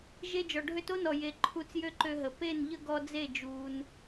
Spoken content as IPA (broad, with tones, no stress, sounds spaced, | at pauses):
ʒ e˧ d͡ʒ ɔ˨ ɖʱ ø˧ t o˦ n ɔ˨ j e˨ ǃʰ u˧ t͡s j ø˦ ǃ ø˧ ɦ ə˨ p e˦˨ n ʎ ə˦ ɡ ɔ˧ d͡z e˦˨ d͡ʒ uː˧ n